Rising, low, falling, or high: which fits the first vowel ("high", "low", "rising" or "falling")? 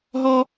high